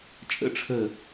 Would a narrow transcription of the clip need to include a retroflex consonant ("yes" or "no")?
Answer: yes